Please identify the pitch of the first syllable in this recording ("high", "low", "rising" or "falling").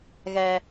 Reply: high